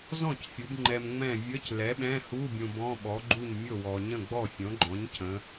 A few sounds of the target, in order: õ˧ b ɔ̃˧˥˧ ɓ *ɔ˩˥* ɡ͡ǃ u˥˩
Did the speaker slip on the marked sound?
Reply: no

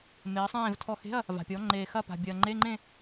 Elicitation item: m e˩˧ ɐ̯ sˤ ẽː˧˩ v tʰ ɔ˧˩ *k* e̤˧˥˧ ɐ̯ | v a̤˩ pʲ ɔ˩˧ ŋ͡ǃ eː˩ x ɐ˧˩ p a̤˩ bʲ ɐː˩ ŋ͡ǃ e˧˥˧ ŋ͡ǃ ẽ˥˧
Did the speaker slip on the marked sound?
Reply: yes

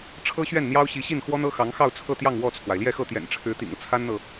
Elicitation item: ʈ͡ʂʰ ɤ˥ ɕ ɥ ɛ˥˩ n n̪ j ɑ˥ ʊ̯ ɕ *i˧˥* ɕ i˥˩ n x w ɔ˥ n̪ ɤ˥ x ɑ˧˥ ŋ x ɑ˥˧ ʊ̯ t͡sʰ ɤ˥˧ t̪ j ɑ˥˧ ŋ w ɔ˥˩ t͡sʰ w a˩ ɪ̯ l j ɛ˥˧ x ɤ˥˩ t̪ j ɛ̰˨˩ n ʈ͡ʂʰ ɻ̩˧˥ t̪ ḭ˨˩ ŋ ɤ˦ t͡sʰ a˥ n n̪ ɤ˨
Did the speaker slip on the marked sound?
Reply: no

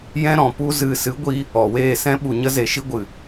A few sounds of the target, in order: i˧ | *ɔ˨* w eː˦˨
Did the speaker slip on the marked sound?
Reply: no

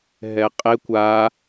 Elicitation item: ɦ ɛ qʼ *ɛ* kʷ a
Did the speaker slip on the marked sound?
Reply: yes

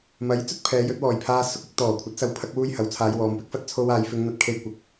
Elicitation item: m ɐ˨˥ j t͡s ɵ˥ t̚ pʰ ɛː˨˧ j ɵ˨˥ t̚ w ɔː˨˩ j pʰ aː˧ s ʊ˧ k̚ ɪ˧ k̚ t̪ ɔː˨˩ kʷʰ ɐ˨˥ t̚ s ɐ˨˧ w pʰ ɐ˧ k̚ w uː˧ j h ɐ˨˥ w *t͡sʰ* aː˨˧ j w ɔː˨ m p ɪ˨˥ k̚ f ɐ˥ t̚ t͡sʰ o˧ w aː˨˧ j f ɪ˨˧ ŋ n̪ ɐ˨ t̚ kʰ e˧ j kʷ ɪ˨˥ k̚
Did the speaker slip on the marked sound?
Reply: no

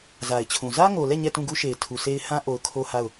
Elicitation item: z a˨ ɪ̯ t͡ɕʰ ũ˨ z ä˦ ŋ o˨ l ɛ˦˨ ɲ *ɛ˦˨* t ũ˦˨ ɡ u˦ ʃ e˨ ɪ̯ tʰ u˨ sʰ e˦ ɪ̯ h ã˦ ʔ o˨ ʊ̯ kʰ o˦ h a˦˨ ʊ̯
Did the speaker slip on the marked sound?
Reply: no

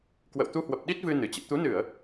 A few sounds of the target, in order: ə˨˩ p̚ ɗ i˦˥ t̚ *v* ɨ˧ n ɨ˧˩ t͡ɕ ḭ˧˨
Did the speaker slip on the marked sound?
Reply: no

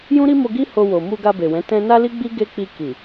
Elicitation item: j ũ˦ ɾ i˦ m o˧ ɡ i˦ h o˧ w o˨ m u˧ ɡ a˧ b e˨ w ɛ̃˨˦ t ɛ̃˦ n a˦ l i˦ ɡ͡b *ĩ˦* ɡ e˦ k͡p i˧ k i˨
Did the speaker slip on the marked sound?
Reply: yes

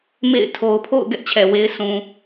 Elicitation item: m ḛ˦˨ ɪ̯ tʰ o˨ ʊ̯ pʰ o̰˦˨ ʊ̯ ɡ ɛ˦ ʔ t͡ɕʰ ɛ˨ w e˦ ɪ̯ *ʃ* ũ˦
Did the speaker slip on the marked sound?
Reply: yes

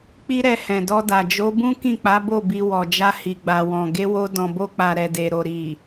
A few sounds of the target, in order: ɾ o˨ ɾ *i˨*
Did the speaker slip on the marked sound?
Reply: no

